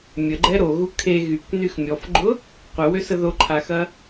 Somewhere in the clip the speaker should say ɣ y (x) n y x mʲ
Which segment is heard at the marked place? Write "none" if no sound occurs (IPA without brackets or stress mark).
k